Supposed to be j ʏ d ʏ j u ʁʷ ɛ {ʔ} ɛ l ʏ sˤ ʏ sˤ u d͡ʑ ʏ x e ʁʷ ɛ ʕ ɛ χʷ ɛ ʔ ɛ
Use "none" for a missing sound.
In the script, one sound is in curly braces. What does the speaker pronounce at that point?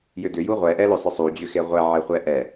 ʔ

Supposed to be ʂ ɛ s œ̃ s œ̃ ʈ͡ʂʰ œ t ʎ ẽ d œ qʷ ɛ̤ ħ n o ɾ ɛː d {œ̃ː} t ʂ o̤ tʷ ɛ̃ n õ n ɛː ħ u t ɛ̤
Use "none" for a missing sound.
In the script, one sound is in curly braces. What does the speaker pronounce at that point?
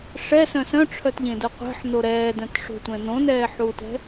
œ̃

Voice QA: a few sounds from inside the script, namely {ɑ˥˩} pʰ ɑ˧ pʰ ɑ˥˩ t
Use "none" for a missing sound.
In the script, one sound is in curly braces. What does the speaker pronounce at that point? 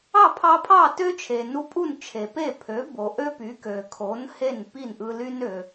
ɑ˥˩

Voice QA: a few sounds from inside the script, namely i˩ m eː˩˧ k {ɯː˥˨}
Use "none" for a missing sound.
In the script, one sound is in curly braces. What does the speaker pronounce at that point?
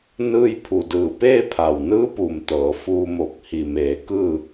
ɯː˥˨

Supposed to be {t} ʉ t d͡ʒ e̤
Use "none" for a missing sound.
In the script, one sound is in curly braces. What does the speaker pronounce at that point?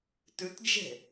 t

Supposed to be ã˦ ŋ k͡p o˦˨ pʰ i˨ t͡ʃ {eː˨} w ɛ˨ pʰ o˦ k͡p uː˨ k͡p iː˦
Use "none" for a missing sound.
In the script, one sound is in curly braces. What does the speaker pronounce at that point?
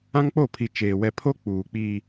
eː˨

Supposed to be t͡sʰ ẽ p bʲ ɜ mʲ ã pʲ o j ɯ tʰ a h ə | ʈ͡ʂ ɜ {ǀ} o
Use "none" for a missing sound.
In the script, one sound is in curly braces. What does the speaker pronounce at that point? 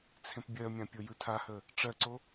ǀ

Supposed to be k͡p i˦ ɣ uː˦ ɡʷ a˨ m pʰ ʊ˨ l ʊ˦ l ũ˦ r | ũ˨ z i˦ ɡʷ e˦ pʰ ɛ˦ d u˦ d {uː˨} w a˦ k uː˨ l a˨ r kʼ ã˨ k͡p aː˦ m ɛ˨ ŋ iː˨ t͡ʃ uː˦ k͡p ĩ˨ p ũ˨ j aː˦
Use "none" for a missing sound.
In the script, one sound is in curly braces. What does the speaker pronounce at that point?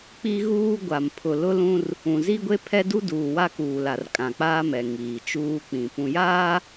uː˨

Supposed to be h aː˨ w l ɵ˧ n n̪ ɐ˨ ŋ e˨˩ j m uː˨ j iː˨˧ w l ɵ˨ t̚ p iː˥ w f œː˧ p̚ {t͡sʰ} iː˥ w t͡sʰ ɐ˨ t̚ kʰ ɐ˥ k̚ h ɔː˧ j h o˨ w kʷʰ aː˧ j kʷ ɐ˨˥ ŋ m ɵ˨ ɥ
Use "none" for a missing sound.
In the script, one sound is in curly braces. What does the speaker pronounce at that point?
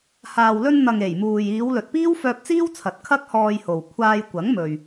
t͡s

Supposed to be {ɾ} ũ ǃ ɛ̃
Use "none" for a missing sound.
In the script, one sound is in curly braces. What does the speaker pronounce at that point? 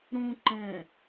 ɾ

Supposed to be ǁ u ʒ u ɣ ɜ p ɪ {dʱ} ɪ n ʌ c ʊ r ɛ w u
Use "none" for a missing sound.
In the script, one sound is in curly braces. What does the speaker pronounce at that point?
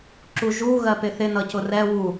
θ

